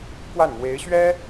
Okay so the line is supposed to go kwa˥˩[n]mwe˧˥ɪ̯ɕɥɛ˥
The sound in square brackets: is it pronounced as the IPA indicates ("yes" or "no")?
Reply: yes